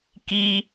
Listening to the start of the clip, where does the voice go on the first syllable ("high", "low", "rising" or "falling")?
high